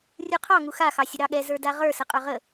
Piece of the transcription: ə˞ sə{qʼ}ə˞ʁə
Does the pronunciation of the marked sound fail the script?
no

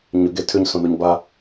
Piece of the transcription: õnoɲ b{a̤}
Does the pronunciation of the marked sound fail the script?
yes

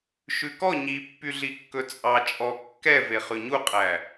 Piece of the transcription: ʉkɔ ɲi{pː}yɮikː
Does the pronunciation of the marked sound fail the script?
no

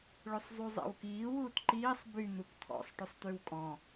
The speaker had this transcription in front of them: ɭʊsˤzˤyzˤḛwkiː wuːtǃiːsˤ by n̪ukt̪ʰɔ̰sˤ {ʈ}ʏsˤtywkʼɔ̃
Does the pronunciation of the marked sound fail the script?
no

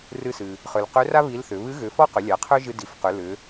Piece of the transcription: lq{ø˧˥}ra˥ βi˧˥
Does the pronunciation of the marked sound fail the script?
no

